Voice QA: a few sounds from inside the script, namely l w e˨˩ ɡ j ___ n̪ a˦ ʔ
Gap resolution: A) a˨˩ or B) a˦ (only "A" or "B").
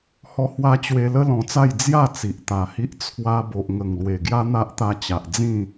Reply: B